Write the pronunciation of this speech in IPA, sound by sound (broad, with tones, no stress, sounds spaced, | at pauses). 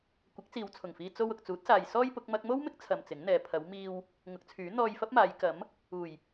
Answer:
kʷ ɪ˨˥ k̚ t͡s iː˨ w t͡sʰ ʊ˨˩ ŋ f iː˧ t͡s o˧ w ʊ˨ k̚ t͡s uː˨˥ t̚ s aː˨ j s ɔː˥ j p ʊ˨˥ k̚ m ɐ˥ k̚ m o˥ w m ɪ˥ k̚ t͡sʰ ɐ˧ m t͡s ɪ˨˥ ŋ n̪ ɛː˨˧ pʰ ɐ˨˧ w m iː˧ w | ŋ ʊ˨˥ k̚ t͡sʰ yː˨˥ n̪ ɔː˧ j f ɐ˥ p̚ m aː˨˧ j k ɐ˨˥ m | uː˨˩ j